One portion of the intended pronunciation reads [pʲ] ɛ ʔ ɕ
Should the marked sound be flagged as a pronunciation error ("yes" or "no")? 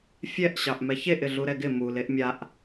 yes